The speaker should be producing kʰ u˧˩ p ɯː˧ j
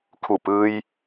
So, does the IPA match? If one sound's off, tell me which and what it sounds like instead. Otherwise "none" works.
none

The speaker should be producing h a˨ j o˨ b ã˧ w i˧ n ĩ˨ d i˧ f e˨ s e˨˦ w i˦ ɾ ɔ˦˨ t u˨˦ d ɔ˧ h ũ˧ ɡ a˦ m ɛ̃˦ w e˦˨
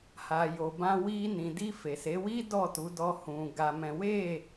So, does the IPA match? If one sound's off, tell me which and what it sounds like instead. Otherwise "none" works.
ɾ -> d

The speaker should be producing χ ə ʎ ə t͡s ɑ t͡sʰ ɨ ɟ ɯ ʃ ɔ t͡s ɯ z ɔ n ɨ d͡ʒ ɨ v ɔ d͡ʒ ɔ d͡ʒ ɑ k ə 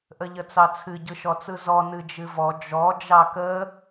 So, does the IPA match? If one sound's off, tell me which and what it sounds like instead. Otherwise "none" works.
χ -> ʔ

